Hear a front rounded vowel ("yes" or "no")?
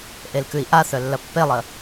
yes